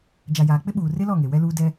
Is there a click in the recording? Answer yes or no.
no